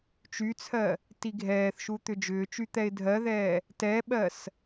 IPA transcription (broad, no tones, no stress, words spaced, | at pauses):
t͡ʃyt͡sʰɜ | tiɡʱɛːθʃu t̪ʏd͡ʒʏːt͡ʃy t̪ɛɪ̯dʱɜðɛː | tɛɓɜs